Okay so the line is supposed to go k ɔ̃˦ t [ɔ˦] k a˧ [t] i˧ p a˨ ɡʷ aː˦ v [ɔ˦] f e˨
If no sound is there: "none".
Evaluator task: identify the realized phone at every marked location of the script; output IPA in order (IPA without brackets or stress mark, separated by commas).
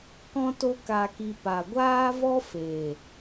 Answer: o˦, k, ɔ˦